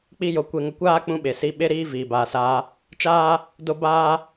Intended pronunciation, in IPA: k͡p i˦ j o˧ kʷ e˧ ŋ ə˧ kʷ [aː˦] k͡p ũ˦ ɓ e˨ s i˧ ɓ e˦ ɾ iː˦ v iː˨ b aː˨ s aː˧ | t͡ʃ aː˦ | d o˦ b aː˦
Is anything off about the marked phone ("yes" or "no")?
no